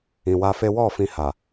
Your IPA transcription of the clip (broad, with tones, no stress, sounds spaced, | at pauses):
ĩ˨ w a˧ f e˦ w ɔ˦˨ f ĩ˧ h a˨